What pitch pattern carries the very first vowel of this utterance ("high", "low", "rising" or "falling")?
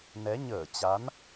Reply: rising